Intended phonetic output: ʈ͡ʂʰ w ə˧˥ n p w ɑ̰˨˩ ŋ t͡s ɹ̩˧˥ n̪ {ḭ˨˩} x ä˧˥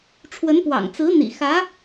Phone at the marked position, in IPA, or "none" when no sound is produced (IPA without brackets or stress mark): ḭ˨˩